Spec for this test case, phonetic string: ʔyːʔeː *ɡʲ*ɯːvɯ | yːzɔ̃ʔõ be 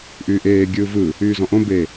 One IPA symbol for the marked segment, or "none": ɡʲ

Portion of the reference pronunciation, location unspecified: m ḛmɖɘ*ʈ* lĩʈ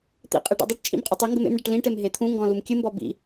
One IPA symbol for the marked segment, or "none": ʈ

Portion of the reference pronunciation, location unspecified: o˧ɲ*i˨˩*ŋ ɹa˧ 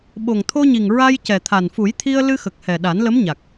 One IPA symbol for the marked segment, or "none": i˨˩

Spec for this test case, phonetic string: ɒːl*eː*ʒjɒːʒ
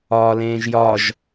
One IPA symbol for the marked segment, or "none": ẽː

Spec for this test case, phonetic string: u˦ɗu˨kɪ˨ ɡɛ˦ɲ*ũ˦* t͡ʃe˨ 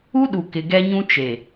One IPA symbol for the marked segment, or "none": ũ˦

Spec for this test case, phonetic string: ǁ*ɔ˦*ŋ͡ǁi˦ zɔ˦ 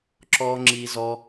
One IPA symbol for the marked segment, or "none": ɔ˦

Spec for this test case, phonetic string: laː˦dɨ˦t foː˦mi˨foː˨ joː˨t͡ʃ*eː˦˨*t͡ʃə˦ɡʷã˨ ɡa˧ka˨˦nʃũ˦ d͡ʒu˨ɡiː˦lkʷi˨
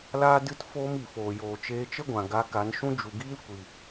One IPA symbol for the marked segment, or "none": eː˧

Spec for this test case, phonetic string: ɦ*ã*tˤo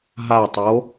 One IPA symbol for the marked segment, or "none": a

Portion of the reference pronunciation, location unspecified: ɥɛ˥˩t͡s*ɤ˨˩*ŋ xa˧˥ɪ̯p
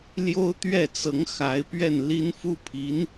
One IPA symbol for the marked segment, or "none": ɤ˧˥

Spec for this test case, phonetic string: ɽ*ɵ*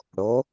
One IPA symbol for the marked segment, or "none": o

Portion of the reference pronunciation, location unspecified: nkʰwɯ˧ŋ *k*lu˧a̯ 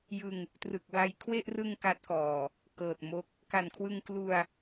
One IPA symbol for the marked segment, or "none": k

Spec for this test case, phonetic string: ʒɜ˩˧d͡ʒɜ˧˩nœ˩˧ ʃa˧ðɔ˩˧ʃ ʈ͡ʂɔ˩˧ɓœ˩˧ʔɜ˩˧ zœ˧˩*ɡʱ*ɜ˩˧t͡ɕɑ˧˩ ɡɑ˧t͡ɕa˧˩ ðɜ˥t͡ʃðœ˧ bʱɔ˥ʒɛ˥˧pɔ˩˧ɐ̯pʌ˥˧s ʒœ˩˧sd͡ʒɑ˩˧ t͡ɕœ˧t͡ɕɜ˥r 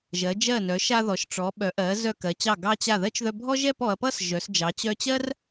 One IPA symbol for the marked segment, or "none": k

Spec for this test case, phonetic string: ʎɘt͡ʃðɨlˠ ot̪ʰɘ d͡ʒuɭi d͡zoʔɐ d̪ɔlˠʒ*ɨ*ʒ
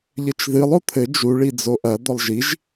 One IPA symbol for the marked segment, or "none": i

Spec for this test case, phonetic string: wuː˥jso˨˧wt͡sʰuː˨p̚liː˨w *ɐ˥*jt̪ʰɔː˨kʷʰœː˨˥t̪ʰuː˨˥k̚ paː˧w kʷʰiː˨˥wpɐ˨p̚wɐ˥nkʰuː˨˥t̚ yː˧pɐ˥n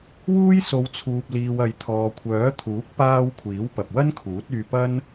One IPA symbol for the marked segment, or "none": ɐ˨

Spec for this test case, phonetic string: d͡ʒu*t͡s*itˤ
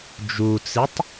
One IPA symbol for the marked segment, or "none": t͡s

